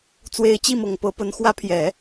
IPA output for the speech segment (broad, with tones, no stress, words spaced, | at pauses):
t͡swe˧˥ɪ̯t͡ɕi˥˩mɤ˨˩ŋpɤ˧˥ pə˧˥n xwä˧˥pʰjɛ˨˩˦